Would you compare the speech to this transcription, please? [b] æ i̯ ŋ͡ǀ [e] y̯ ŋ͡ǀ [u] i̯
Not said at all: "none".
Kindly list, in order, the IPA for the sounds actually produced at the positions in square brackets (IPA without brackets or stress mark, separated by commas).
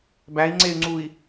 b, e, u